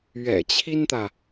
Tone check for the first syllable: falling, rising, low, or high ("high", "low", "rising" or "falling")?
low